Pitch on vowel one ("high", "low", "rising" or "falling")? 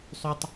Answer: high